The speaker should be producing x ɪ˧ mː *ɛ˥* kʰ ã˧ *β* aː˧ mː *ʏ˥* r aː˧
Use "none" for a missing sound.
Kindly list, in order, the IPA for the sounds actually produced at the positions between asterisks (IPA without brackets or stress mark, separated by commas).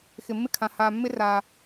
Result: ɪ˥, h, ɪ˥